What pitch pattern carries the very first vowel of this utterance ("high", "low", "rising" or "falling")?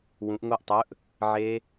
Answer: rising